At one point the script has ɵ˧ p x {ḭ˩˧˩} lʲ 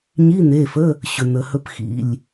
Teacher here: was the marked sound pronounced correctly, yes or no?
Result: yes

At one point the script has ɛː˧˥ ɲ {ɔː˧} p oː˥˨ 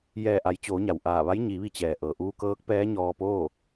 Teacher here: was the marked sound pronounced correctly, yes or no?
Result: yes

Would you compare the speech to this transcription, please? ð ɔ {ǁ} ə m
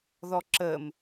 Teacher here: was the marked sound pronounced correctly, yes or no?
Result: yes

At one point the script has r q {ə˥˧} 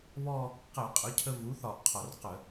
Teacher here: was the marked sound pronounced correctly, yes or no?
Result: no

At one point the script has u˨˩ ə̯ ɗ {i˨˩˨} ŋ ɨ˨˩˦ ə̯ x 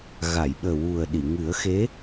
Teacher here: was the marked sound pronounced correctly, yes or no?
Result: yes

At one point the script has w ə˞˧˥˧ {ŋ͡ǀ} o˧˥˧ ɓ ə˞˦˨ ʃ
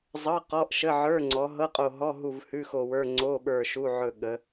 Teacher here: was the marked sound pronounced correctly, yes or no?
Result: yes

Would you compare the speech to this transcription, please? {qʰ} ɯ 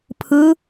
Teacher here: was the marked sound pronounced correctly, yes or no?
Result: no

